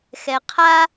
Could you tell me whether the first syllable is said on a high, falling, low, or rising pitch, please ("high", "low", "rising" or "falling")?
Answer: low